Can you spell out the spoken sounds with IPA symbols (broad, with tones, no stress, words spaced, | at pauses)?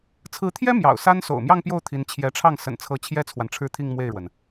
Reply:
t͡sʰɹ̩˧˥t̪ʰjɛ˥ mjɑ̰˨˩ʊ̯ sa˥n so̰˨˩ʊ̯mjɑ˥˧ŋpjo˥˩ʊ̯ t̪ʰi˧˥n t͡ɕʰjɛ˧˥ʈ͡ʂʰɑ˥˩ŋ sə̰˨˩nt͡sʰɤ˧˥ t͡ɕʰjɛ˥t͡sʰwa˨nʈ͡ʂʰɻ̩˥˧t̪ʰi˥˧ŋ mwe˥˩ɪ̯ɻwə˩n